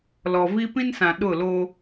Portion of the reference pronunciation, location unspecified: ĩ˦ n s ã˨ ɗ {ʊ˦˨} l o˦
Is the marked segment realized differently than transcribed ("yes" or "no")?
no